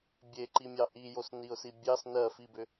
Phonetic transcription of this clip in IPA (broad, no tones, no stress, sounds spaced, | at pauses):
bʲ e ǃ i mʲ ɑ ʔ i j o s n i ʊ̯ s i bʲ ɑ s n ɜ f i b ʏ